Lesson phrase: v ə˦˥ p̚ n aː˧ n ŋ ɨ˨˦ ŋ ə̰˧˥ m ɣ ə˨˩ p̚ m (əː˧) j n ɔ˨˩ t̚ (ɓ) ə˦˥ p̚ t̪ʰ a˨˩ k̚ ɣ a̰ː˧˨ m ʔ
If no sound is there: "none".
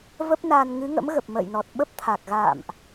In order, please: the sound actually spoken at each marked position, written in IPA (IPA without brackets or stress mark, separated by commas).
ə̰ː˧˨, ɓ